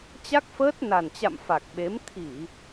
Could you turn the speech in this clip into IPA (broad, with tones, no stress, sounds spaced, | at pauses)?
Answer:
t͡ɕ a˦˥ k̚ f əː˦˥ t̚ n a˨˩ n t͡ɕ a̰˧˨ m f a˨˩ k̚ ɓ e˨˦ m t̪ʰ i˧˩˨